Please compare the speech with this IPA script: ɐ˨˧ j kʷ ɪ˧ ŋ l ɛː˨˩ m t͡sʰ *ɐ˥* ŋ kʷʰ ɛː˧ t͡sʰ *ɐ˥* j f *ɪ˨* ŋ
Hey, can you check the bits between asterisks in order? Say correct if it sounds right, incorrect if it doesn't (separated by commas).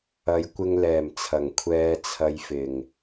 incorrect, incorrect, incorrect